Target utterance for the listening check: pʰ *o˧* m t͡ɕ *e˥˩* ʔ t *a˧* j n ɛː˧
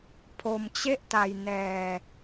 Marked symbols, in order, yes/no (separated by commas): yes, yes, yes